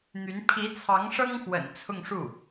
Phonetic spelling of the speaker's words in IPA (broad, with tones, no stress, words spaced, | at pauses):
n̪y˧˥n pʰi˧˥t͡sʰɑ˧˥ŋʂɤ˥ŋxwə̰˨˩n t͡sʰʊ˥˧ŋʂu˥˩